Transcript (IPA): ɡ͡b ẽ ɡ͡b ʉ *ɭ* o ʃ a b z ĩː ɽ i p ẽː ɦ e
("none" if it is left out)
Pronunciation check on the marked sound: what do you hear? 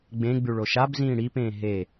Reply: ɭ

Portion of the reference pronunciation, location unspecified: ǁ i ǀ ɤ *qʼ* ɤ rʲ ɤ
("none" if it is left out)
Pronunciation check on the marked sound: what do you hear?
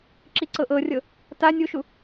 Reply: ʔ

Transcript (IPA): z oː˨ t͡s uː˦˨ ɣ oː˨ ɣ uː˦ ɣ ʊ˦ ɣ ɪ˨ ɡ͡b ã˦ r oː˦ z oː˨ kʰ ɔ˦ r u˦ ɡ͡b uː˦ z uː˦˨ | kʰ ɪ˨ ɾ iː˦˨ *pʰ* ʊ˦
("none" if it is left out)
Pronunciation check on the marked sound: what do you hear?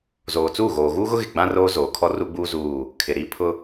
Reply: pʰ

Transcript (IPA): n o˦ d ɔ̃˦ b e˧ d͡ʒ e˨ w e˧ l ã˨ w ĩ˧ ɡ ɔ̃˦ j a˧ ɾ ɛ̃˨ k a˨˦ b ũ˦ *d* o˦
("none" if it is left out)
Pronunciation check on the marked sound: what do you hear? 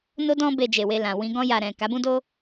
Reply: d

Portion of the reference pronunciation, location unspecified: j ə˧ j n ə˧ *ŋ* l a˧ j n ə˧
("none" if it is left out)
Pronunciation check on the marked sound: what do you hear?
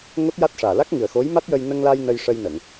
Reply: ŋ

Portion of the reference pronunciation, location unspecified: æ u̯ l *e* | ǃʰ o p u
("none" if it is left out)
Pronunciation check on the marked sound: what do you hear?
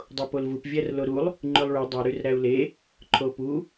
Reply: e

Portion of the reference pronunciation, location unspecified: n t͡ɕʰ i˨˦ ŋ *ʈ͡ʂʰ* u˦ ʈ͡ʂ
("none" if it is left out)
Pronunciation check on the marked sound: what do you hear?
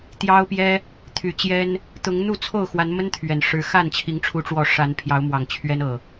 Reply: ʈ͡ʂʰ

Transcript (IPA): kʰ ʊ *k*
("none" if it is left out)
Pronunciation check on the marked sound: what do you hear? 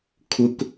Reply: k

